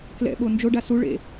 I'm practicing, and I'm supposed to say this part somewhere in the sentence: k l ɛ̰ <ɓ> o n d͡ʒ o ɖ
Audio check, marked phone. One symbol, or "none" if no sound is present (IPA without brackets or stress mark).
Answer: ɓ